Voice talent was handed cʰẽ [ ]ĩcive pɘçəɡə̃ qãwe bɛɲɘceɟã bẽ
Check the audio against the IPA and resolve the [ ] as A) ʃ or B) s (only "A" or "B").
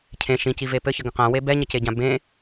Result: A